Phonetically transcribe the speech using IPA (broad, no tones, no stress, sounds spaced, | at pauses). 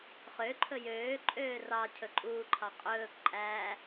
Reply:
χ ø ǃʰ ɵ j øː ǃʼ øː r ɑ cʰ ɵ ǃʼ uː ǃʰ ɑ qʼ ɵː k ǃʼ æː